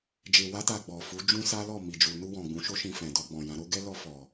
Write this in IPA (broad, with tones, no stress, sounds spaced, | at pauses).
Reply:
d͡ʒ e˧ w a˦ t a˧ ɡ͡b ɔ˨ f u˨˦ d͡ʒ ũ˦ s a˦ l ɔ˦˨ m i˨ d͡ʒ u˨ n u˧ w ɔ̃˨ ɡ͡b ũ˨˦ ʃ o˦ ʃ ĩ˧ f ɛ̃˨ d ɔ˧ ɡ͡b ɔ̃˨ j ã˨˦ ɾ o˦ ɡ ɛ˦ l ɔ˦ f ɔ˧